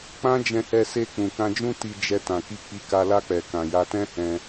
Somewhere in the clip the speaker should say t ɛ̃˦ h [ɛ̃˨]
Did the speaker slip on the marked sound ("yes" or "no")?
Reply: yes